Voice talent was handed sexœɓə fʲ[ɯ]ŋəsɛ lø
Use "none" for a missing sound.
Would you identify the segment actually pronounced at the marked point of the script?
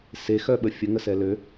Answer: ə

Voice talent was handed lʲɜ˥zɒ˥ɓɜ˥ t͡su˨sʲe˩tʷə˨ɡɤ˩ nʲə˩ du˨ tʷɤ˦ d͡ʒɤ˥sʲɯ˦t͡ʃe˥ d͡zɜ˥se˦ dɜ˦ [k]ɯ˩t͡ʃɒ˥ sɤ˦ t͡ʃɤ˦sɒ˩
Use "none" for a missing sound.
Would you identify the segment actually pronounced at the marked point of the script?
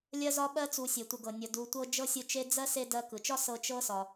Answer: k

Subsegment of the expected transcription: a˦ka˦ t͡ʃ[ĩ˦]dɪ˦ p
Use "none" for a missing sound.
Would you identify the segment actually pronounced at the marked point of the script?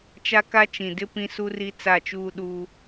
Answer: ĩ˨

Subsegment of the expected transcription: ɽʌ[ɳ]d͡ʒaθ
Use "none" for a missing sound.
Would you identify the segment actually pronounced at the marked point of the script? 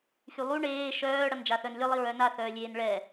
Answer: n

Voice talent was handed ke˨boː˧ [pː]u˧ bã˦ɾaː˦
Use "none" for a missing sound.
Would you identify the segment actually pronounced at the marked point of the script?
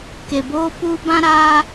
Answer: p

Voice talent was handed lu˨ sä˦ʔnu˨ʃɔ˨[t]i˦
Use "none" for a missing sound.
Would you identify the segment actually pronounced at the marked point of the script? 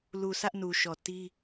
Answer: t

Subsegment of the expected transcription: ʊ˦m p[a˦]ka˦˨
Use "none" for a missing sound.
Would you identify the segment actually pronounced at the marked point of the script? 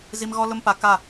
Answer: a˦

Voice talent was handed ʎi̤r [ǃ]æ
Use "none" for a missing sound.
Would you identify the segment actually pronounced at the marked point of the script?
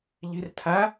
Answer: tʰ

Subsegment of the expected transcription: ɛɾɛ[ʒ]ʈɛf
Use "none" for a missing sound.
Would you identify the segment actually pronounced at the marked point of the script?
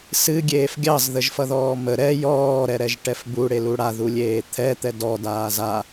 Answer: ʒ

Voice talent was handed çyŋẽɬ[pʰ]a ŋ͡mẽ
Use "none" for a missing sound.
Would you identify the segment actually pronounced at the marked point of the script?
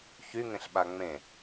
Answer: ɓ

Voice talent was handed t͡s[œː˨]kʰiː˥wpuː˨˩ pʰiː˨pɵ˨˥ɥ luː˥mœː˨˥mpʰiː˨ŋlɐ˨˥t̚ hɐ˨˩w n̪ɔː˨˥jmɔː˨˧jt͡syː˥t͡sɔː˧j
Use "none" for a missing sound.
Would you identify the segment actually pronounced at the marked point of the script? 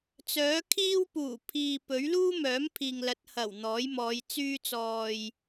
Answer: œː˨˥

